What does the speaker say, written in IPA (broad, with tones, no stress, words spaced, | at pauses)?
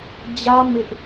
d͡ʑä˦ mɪ˦ʔ